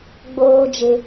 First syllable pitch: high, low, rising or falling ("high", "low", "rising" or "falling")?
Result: high